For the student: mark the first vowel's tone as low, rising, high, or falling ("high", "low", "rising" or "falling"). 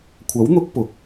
rising